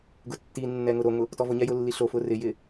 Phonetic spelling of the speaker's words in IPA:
ɡʊtːinːɛ ŋʊɾoŋʊ | tɔvʊɲɛ jʊlːiɬofʊ rɪjɪ

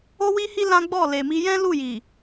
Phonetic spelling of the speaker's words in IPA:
o˦wi˦hi˦ lã˦ɡ͡bɔ˦˨le˨mi˧ jɛ̃˦lu˦˨ji˨

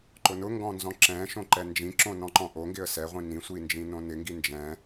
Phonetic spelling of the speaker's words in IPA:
ǃʊnʊŋɡɔ̃ nzɔ̃ǁɛ̃ʃõ ǃɛnd͡ʒĩǁõ nɔ̃ǃɔ̃ʔoŋɡɪə̯ sɛʁʷĩ nĩsʷi nd͡ʒĩnõnɪŋɡi nd͡ʒɛ̃

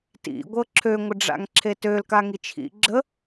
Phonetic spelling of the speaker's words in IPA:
tḭ ɡʷɤǁʰø ŋʷəɖ͡ʐa̰ŋǁʰetøl kaŋit͡ʃʰḭ ɡ͡ǁə

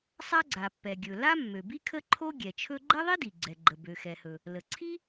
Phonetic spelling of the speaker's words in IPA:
sˤa˥ɡ͡ǀa˩pːɛ˩ ɡʲɵ˩ la˥mːø˩bi˥ kʰə˥ǃʰo˥ ɡʲɛ˩t͡ʃʰɵ˥ ɡ͡ǃɛ˥ðˤi˥di˩ ɡ͡ǀɛ˩ɡ͡ǃə˩ bø˩xɛ˩hɵ˩ | lə˩ǀʰi˥

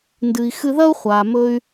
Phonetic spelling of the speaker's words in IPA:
ndɨ˩i̯ xɨ˧ðɐ˥u̯χʷaː˩mɵ˧y̯

